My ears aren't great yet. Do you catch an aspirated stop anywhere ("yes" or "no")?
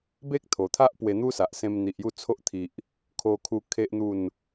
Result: yes